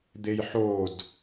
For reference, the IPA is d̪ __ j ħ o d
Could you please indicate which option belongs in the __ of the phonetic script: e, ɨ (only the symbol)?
e